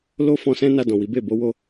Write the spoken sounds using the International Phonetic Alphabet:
l o˦ f ɔ̃˧ s ɛ̃˦ n a˧ d ɔ̃˨ w i˨˦ b e˦˨ b o˨˦ w o˦

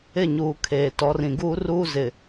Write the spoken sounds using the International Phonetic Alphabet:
ɪ˦˨ ɲ uː˨ kʰ eː˨ t ɔ˨˦ r ĩ˨ ɡ uː˦ r uː˦ z ɪ˨

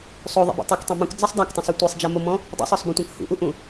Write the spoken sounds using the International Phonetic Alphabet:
sˤ o ðˤ ɛ̰ b ṵ tˤ o k tˤ ẽ m ũ k d͡z ɛ sˤ dˤ a k tˤ õ sˤ ɛ tʷ e sˤ d͡ʒ a m o m ɔ̃ | dˤ ḛ sˤ ɔ sˤ b ɔ̃ tʷ ã k h ṵ ʔ u ʔ ũ

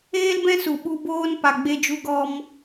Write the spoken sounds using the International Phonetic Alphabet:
eː˦ l b ɛ̃˦ s u˨ ɓ u˧ b oː˦ n p a˨ ɡ͡b e˧ d͡ʒ u˧ ɡ ɔ˧ m

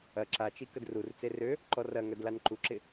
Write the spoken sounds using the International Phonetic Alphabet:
ɐ ǁ a t͡ʃ i k ə d r u r t͡s e r ø | ǃ ɔ r ɐ ŋ œ d l a n ǃ u ǁ ɪ

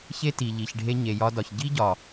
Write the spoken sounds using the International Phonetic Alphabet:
ç e˦ t i˨ ʎ i˨ ç ɖʱ e˧ ɲ e˨ j ɒ˧ d ɒ˨ ç ɟ i˦ ɟ ɒ˨

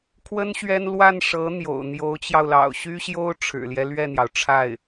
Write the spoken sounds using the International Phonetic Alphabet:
kʰ w ə˥ n ɕ ɥ ɛ˥ n l w a˥˩ n ʂ ɤ˧˥ n̪ j o̰˨˩ ʊ̯ n̪ j o˧˥ ʊ̯ t͡ɕ j ɑ˧ ʊ̯ l ɑ̰˨˩ ʊ̯ ɕ y˥ ɕ j o˥ ʊ̯ ʈ͡ʂʰ ɻ̩˨˩ l j ɛ˦ l ɥ ɛ˥˩ n̪ j ɑ˩ ʊ̯ ʈ͡ʂʰ a˥˩ ɪ̯

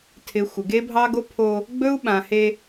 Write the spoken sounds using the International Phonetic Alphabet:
tʰ ɪ˨ xʷ ɪ˨ ɡ e˦ bʱ ɑ˦ ɡ o˦ pʰ o˦ | ɡ͡b ɵ˦ u̯ ɓ ã˨ h e˦

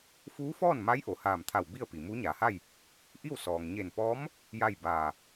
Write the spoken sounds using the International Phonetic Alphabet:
f uː˧˥ f ɔː˥˨ n m a˧˥ j ʔ o˩ h aː˧˩ m t̪ʰ a˧˩ w b i˥˨ ə̯ p i˩ m uː˧˥ ɲ aː˩˧ h a˥˨ j | ʔ i˥˨ w s ɔː˩ ŋ ɲ e˧˩ n p ɔː˧˥ m | j a˥˨ j b aː˧˩

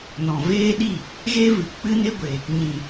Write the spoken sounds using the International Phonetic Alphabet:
n ɔ̃˨ v eː˦ ɗ i˦˨ | ɣ e˦ v ɨ˨ k͡p ɨ˧ n e˧ ɡʷ e˨ | ɲ ĩ˨

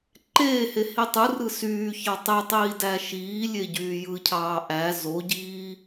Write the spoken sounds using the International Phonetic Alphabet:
ǃ eː h e h i tˤ ɯ r ɯ s yː ç ɑ tˤ e tˤ iː d æ ʃ iː lʲ e ɟ yː j ɯ cʰ ɑː ʔ æ z o ɟ iː

